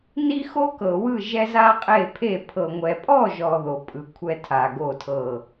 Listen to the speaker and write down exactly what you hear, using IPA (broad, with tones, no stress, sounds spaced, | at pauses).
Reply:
n i˥ x o˥ k ɤ˨ w ɯ˥˨ ʒ ɛ˥ z a˥ qʼ e˥˨ pʰ e˥˨ pʰ ɤ˨ ŋʷ ɛ˨ pʼ ɔ˥˨ ʒ ɔ˨ ð o˨ pʼ ɯ˨ kʷʰ ɛ˥ tʰ a˨ ɡ o˥˨ tʰ ɤ˥˨